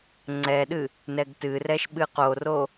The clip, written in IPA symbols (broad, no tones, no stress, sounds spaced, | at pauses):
ŋ͡ǀ ɛ ɗ ɨ | n ɛ ɡ t ɨ r ɛ ʃ ɓ ɨ q o r o